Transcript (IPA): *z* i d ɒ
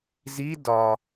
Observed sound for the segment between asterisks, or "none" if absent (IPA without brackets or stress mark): z